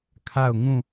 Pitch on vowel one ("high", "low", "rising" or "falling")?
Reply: falling